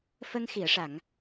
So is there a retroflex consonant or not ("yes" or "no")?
yes